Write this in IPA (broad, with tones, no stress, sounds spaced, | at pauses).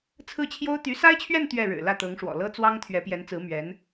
t͡sʰ ɹ̩˥˩ t͡ɕʰ j o˥ ʊ̯ t̪ y˧˥ s a˥ ɪ̯ t͡ɕʰ ɥ ɛ˥˧ n t̪ ɥ ɛ˥˩ ɻ ɻ̩˨˩ l ä˥˩ t̪ ɤ˧˥ ŋ ʂ w ɔ̰˨˩ l ɤ˥ t͡s w ɑ˥ ŋ t̪ʰ ɥ ɛ˧˥ p j ɛ˧˥ n t͡s ɹ̩˧˥ m ɥ ɛ˧˥ n